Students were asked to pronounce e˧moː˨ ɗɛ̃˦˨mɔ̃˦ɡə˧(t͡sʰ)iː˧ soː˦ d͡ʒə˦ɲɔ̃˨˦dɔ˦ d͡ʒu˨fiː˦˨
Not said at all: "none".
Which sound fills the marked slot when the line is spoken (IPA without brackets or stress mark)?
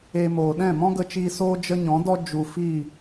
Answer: t͡ʃ